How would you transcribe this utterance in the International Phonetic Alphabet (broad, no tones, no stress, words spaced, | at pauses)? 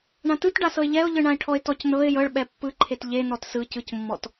ɳãtɯtɖasɤɪ̯ ʎɛʊ̯ʎɯɳãɪ̯ʈʰɔɪ̯ tɔcnɤɪ̯ jɤɭ ɓɛpːɯ ǃʰetʎe nɔtsɯ cɯcmːɔt